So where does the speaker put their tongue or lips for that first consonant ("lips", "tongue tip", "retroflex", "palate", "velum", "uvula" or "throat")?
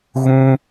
velum